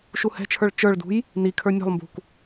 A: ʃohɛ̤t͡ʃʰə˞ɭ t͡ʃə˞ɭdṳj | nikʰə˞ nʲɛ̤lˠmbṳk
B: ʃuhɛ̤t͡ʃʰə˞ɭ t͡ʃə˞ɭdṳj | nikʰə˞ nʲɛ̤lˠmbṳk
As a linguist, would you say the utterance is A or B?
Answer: B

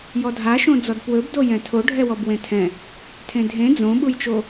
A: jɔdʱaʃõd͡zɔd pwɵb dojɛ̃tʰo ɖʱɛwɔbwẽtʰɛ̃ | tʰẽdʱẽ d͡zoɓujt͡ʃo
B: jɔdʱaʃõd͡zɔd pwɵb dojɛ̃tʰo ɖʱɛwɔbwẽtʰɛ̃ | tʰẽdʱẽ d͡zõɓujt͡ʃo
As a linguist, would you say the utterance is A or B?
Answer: B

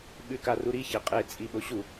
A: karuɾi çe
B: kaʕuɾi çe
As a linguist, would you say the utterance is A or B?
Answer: A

